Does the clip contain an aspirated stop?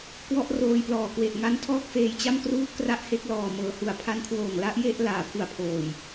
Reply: yes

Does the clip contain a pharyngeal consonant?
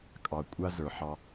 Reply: yes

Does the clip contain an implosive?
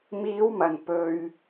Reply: no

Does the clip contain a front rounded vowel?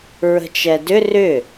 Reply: yes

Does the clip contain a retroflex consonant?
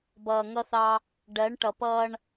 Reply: yes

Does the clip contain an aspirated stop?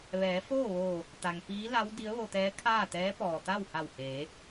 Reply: yes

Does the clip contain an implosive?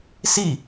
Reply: no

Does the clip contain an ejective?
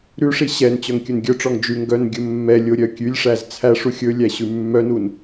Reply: no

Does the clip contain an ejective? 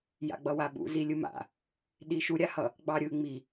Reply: no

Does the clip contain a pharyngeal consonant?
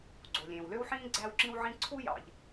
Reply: yes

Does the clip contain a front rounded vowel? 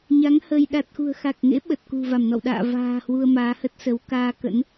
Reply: no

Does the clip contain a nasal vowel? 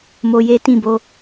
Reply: yes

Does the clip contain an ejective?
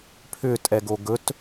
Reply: yes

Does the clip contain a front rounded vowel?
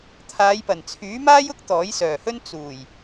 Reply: yes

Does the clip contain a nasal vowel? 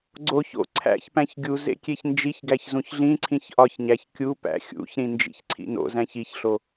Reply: yes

